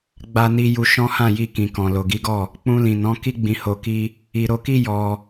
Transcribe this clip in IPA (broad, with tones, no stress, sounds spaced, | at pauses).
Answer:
ɡ͡b a˧ n i˧ j u˧ ʃ ɔ̃˦ h ã˦˨ j i˧ k ĩ˨ k ɔ̃˨ l o˨ ɡ i˨˦ ɡ ɔ˦˨ | k͡p ũ˧ l ĩ˨ n ɔ̃˨˦ k i˦ ɡ͡b ĩ˧ h o˧ k i˦ | i˧ ɾ o˧ k i˦ j ɔ˧